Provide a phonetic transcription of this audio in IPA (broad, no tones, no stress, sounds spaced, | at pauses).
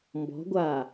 m b ɔ̤ ɡʷ aː